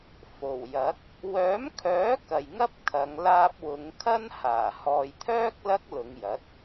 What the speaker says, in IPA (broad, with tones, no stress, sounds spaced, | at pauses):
f o˨˩ w j ɐ˨˥ k̚ | w œː˨˥ m kʰ œː˨˥ k ɐ˨ j ŋ ɐ˥ p̚ kʰ ɐ˨˧ ŋ l aː˧ p̚ w ʊ˨˧ ŋ kʰ ɐ˥ n h aː˨˩ h ɔː˨ j t̪ʰ œː˥ k̚ l ɐ˥ k̚ l ʊ˨˧ ŋ j ɐ˨˥ t̚